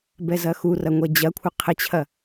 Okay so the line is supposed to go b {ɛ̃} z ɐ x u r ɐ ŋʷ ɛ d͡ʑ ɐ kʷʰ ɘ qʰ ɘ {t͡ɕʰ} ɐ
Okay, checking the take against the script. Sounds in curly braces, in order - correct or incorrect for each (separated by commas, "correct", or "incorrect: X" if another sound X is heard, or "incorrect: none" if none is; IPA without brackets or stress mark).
incorrect: ɛ, correct